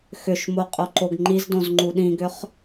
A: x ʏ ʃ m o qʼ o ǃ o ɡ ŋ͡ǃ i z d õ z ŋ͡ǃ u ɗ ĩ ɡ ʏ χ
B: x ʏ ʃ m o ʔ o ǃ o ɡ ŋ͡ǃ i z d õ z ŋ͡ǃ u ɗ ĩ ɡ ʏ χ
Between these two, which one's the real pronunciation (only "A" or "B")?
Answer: A